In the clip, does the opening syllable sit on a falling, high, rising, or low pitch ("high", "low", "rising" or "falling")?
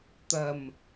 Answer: low